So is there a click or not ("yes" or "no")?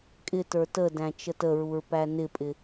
no